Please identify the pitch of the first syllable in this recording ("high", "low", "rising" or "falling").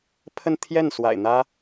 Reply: falling